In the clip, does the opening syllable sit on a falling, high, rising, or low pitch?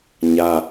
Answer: high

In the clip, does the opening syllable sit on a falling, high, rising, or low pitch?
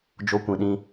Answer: high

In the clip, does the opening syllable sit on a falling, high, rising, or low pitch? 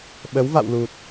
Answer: rising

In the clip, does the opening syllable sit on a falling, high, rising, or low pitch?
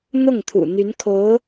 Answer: falling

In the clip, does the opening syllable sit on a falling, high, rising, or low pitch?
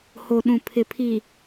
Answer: low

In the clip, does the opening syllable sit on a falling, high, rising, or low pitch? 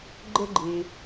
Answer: high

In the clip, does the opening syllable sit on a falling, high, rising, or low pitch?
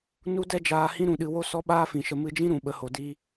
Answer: high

